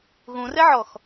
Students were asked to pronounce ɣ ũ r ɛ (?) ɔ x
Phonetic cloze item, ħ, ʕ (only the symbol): ʕ